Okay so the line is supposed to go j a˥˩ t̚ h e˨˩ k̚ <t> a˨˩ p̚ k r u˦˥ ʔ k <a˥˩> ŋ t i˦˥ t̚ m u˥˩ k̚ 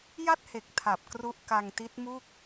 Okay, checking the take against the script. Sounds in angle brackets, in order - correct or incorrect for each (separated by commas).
incorrect, incorrect